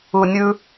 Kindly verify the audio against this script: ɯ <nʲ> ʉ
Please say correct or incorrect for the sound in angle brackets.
correct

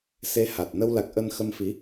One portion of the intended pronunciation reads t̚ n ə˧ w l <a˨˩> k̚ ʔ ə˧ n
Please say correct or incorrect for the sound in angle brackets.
correct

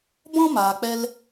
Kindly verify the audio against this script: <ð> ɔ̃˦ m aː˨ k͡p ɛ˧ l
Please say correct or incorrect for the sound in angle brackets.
incorrect: b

